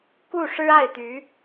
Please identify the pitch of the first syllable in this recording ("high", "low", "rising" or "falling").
falling